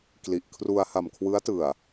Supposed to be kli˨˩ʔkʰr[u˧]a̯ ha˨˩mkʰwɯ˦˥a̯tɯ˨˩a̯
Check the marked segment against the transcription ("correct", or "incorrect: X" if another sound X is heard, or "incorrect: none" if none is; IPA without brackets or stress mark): correct